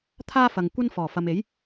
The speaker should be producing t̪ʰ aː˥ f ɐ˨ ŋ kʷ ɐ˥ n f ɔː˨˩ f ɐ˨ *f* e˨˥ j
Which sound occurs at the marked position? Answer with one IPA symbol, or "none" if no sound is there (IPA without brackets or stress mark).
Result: m